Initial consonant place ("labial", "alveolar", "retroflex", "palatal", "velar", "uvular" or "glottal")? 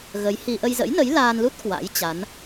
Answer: velar